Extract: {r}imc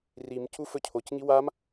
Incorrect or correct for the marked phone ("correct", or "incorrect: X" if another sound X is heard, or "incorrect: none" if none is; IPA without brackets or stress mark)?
correct